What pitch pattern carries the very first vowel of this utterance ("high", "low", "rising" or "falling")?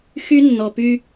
high